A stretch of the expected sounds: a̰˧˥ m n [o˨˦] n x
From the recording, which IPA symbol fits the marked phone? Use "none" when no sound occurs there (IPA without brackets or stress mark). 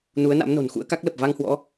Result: o̤˨˩